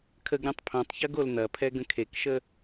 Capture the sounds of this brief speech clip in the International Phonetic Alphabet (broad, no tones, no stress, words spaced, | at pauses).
kʰəɡɾʲõtˤ pʰõtˤçɐɡ oln̪ɐpʰɛ ɡə̃kʰekʃə